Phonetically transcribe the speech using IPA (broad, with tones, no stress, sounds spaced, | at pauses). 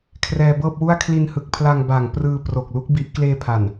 kʰ r ɛː˧ b ɤː˥˩ p̚ w u˥˩ a̯ kʰ l i˧ n h ɯ˨˩ k̚ pʰ l a˧ ŋ b aː˨˩ ŋ p r ɯː˧ p r o˨˩ k̚ l u˦˥ k̚ b i˦˥ ʔ k l eː˧ pʰ a˨˩ n